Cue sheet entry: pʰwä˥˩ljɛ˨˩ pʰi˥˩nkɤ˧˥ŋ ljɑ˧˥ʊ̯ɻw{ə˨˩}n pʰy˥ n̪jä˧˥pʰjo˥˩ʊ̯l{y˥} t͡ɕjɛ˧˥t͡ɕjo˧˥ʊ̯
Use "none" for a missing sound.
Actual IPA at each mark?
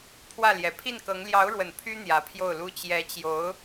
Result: ə˨˩, u˥

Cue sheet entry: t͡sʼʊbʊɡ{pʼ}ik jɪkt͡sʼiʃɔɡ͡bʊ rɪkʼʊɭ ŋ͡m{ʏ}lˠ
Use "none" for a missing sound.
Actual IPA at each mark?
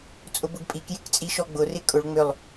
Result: pʼ, ʏ

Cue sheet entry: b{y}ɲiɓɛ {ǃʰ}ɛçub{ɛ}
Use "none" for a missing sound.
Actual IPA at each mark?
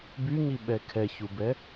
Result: y, kʰ, ɛ

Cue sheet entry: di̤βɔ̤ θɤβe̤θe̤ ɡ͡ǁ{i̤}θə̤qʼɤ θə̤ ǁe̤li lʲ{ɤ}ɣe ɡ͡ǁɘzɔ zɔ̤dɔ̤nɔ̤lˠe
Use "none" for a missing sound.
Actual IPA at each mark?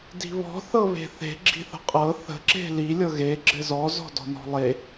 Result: i̤, ɤ

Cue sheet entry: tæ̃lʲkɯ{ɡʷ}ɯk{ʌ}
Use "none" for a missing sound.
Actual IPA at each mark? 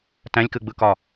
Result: ɡ͡b, ɒ

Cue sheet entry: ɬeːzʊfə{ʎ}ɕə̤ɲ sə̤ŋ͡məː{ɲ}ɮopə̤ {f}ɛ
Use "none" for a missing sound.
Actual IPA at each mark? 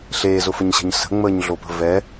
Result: ɲ, ɲ, v

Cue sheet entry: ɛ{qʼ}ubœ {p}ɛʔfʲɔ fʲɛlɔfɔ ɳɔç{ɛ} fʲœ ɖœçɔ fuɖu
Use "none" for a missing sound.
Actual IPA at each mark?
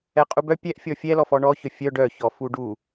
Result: qʼ, pʲ, œ

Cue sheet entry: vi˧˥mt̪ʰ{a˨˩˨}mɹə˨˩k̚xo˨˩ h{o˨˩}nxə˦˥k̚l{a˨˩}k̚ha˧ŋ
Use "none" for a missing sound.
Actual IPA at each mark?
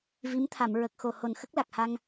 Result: a˨˩˨, o˨˩, a˨˩

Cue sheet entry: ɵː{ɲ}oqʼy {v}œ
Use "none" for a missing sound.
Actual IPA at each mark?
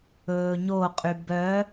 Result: ɲ, b

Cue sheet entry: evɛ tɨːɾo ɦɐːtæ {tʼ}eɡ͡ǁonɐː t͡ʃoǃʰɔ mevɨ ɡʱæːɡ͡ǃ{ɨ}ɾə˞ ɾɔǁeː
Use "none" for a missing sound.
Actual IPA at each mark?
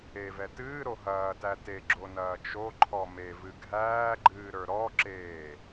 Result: t, ɨː

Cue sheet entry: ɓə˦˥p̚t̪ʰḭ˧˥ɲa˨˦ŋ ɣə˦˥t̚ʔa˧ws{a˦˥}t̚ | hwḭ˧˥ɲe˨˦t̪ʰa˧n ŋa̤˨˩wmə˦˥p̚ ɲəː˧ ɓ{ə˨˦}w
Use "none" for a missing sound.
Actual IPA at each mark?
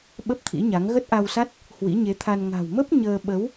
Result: a˦˥, ə˨˦

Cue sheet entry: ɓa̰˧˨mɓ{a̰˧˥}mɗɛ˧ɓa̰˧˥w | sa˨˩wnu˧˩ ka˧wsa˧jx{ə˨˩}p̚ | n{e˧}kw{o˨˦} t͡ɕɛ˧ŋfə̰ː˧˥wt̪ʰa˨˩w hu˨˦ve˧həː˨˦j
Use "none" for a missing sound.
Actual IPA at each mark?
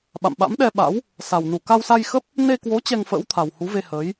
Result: a̰˧˥, ə˦˥, e˧, o˨˦

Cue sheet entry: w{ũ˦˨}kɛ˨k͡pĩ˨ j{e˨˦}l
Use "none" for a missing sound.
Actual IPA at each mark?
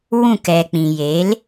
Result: ũ˦˨, e˨˦

